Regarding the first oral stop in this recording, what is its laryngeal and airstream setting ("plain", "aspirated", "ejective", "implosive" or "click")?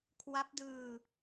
aspirated